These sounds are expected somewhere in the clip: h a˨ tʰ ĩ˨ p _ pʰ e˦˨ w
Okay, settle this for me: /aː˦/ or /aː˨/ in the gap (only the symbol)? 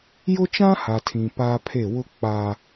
aː˦